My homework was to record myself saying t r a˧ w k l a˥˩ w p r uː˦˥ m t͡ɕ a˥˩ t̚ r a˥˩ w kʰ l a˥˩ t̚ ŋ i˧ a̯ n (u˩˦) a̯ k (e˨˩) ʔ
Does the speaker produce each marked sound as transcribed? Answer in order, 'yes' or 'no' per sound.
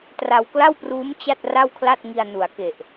yes, yes

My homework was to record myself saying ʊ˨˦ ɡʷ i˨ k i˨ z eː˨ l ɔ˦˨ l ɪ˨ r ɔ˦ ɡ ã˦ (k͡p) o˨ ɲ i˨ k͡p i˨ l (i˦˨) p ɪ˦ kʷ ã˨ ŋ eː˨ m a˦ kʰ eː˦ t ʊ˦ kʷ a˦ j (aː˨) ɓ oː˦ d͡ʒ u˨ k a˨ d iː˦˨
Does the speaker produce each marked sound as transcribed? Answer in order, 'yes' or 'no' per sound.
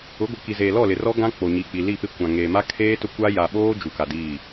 yes, yes, no

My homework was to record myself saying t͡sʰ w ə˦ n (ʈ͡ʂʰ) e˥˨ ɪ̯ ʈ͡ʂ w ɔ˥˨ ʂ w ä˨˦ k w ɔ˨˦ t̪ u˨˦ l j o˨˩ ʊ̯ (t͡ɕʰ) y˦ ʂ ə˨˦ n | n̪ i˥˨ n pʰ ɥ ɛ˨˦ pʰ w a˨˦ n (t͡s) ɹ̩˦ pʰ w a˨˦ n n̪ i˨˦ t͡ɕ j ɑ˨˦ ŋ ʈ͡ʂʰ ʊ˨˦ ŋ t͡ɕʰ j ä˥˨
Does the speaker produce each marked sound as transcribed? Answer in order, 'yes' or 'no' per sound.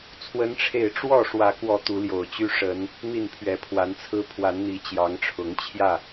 yes, no, no

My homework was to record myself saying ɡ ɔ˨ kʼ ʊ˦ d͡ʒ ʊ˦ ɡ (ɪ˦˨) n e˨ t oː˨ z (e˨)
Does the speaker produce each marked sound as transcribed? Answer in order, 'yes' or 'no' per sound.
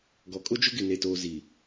yes, no

